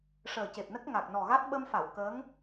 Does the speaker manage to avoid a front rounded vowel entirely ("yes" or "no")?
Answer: yes